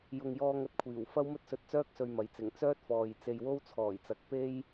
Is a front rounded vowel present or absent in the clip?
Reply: present